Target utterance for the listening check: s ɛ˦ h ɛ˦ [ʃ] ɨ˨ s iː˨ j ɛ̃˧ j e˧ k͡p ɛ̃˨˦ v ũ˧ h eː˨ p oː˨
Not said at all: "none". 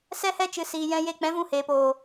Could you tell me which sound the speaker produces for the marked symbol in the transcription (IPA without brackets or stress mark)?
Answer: t͡ʃ